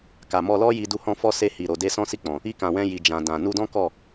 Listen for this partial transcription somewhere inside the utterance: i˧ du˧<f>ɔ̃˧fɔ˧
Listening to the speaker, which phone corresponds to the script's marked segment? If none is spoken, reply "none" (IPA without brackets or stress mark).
h